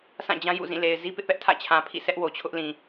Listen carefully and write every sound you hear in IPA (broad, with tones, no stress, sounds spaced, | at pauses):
s ã˦˨ d͡ʑ ã˦ j ṵ˦˨ z ĩ˦˨ l e˨ ɪ̯ z i˦ p ɪ˦ ʔ p ɛ˦ ʔ tʰ ä̰˦˨ t͡ɕʰ ã˨ pʰ ḭ˦˨ s ɛ˦ ʔ w o˨ t͡ɕʰ ʊ˦ ʔ l ĩ˨